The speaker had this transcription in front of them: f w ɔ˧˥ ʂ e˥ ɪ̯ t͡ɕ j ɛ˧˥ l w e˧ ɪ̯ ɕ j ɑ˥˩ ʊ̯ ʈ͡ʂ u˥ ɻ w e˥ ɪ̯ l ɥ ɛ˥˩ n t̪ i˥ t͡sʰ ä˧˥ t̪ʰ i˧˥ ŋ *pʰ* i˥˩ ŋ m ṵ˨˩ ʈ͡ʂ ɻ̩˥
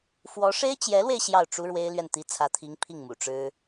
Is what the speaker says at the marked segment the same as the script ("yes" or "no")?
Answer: yes